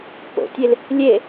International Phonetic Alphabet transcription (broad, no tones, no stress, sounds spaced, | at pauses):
p o̰ tʲ e l | lʲ e